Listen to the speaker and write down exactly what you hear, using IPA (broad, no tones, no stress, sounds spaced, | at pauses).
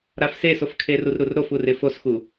ɾ a f s e s o f kʰ e r u r ɾ u r ɾ o f u r ɪ f o s x u